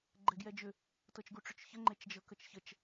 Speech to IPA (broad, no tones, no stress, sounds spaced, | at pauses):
ɡ͡ǃ ɛ ɡ j ɛ d͡ʒ ʏ | t ɤ t͡ʃ ɡ u ʈ͡ʂ ʏ t͡ʃ ç ə ŋ͡ǃ e t͡ʃ d͡ʒ ɤ k ə t͡ʃ ç ə t͡ʃ